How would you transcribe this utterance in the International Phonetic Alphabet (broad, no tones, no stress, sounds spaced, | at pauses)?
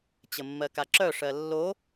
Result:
t͡ɕ ə mː ɜ k a ǁ œ ʂ ɜ lː o